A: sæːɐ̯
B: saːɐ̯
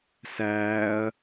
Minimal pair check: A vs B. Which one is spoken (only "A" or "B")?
A